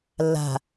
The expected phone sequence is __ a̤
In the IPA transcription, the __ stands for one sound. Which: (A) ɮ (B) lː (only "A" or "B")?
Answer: B